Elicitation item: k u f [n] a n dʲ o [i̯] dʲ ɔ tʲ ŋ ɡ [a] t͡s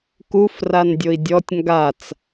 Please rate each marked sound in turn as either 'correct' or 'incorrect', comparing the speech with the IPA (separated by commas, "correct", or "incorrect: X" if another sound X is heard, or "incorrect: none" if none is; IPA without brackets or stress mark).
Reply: incorrect: r, correct, correct